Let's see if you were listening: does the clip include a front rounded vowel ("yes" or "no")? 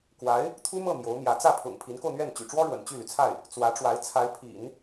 yes